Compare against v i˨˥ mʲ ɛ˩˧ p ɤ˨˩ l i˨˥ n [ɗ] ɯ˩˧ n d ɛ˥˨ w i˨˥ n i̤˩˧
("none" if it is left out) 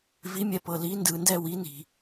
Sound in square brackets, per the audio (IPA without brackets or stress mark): d